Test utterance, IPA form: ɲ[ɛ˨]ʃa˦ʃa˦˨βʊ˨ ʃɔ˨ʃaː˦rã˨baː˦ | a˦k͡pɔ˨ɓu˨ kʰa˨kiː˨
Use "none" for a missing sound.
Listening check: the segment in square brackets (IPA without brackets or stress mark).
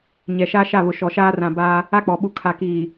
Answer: ɛ˨